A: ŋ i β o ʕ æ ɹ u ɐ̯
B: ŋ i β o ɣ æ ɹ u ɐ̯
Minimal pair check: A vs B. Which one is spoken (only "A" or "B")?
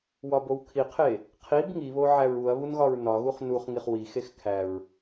A